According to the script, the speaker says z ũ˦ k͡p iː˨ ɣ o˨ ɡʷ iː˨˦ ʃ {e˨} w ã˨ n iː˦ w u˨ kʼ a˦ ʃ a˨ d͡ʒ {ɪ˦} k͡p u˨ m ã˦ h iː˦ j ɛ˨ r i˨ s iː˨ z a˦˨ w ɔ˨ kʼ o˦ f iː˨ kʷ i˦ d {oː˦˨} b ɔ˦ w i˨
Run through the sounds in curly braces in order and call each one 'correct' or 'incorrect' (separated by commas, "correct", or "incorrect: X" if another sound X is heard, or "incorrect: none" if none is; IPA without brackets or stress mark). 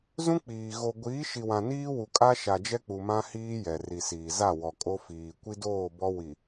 incorrect: i˨, incorrect: ɛ˦, correct